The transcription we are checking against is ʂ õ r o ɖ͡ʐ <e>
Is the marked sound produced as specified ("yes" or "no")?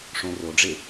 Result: yes